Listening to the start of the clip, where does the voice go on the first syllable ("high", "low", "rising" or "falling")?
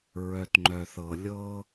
low